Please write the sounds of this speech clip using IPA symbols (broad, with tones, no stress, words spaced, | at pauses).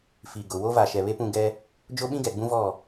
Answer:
fi˨ɡʊ˨wo˦ va˨ʃɛ˨βe˦pũ˦˨ ɡɛ˦ | d͡ʒo˦ɓĩ˦ɡɛ˨ ɡ͡bũ˦vɔ˦˨